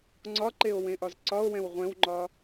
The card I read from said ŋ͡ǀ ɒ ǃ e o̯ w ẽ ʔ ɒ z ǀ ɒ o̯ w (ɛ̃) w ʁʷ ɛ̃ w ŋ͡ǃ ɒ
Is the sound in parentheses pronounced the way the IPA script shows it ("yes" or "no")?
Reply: yes